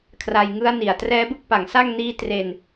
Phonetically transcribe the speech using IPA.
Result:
kʰ r a˧ j ŋ ɯ˦˥ a̯ n i˨˩ a̯ t r ɛː˦˥ b ɯ˥˩ k̚ p a˨˩ ŋ s a˥˩ ŋ n iː˦˥ t r e˧ n

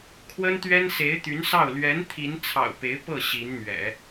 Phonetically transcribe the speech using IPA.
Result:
kʰ w ə˥ n t̪ ɥ ɛ˥ n s e˧˥ ɪ̯ t̪ y˧˥ n s ɑ˥˩ ʊ̯ l ɥ ɛ˧˥ n t̪ʰ i˧˥ n t͡sʰ ɑ̰˨˩ ʊ̯ p e˧˥ ɪ̯ p ɤ˥˩ ɕ i˧˥ n n̪ ɥ ɛ̰˨˩˦

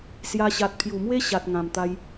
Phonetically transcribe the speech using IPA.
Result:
s j a˧ ɕ a˨ t̚ pʰ j u˨˩ m w e˦ ɕ a˨ t̚ ŋ ã˨˩ m t̪ a˧ j

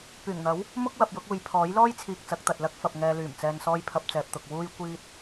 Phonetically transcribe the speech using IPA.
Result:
p yː˨˩ ŋ n̪ ɐ˨˥ w | m ʊ˥ k̚ w ɐ˨ p̚ j ʊ˧ k̚ uː˨ j pʰ ɔː˨˥ j l ɔː˥ j t͡sʰ iː˧ k̚ t͡s ɐ˨˥ k̚ t̪ ɐ˨ t̚ l ɐ˥ k̚ f ɐ˨ p̚ ŋ ɛː˨ l yː˨˩ m t͡s ɛː˨ n s ɔː˧ j pʰ ɐ˧ p̚ t͡s ɛː˨ p̚ t̪ ʊ˨ k̚ w uː˧ j kʷ iː˧ t̚

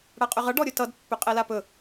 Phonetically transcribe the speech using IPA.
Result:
ɽ a qʼ ʏ ʁ ʌ ɖ ɔ ɾʲ ɵ t ʌ d pː ʏ qʼ ɛ l a p ɵ

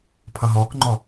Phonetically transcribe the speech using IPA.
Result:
pʰ ʌ ɦ ɔː k ŋ͡ǃ ɔ

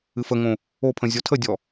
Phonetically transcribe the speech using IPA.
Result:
ɨ f ə ŋ õ | o pʰ ə̃ zʲ ɔ tʰ ə dʲ ɔ

